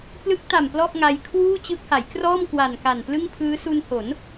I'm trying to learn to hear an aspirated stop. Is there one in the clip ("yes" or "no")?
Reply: yes